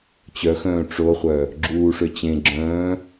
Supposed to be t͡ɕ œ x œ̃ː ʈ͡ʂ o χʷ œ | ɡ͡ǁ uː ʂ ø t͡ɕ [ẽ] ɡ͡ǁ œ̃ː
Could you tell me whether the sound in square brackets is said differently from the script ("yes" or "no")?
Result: no